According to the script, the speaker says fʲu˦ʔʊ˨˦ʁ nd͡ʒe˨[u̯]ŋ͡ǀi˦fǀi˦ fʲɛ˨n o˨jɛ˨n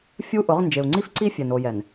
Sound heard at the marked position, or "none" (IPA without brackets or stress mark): u̯